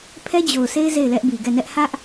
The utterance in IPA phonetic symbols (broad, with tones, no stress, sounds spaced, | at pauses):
pʰ ɛ˦ d͡ʑ o˨ ʊ̯ sʰ e˦ ɪ̯ z e˦˨ ɪ̯ l ɛ˦ ʔ b i˨ ɡ ɛ˦˨ n ɛ˦ ʔ h ä˦ ʔ